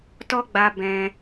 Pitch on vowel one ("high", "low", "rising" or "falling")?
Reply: high